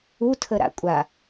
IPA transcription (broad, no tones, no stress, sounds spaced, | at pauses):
u tʰ ə ɾ a̰ kʷʼ a